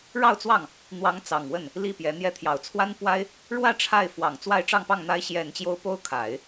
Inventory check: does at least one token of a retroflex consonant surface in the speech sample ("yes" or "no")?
yes